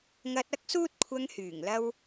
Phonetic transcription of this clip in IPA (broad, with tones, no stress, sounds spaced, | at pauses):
ŋ ɐ˧ t̚ ɐ˥ k̚ s uː˥ t̚ kʷʰ ɐ˧ ŋ h yː˨˩ ŋ l ɐ˥ w